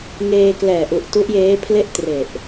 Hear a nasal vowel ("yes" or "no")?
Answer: no